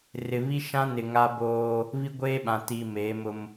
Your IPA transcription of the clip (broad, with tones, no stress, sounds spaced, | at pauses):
r ɪ˨ β i˦ ʃ ã˦ n ɪ˨ ŋ a˦ b oː˦ | β i˦ ɡʷ eː˦ ɓ ã˨ t i˨ m eː˨˦ m ʊ˦ m